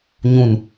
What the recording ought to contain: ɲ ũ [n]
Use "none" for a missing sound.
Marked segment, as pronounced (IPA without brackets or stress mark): n